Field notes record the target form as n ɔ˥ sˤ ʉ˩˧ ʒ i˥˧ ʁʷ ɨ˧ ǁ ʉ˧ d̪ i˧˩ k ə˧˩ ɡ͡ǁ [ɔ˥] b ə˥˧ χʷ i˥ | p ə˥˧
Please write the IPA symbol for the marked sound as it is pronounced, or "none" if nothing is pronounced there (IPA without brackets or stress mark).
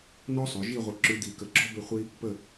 ɔ˥